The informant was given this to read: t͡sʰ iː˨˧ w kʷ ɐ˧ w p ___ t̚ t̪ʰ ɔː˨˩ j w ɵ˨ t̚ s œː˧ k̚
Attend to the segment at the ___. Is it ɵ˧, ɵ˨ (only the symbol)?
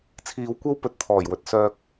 ɵ˨